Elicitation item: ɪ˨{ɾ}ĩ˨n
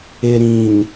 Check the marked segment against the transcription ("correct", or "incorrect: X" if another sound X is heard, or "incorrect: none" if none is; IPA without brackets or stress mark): correct